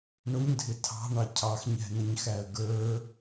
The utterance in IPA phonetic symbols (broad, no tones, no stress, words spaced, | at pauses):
ɳʊɲdʱɪ tʰɑ̤ɳɑ cʰɑxɲɛ̤nəɲxæə̯ ɡə˞